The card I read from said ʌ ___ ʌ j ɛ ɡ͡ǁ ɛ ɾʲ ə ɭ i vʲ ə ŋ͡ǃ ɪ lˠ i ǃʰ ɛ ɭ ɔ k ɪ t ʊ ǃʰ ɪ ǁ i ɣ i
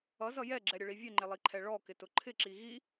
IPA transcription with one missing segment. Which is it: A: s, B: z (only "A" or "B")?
B